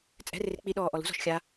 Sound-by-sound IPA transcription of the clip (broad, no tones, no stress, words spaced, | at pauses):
t͡sʼɛ̤rɪr k͡piɗɔː ʔɔlṳzɔ̤ʃ xʲa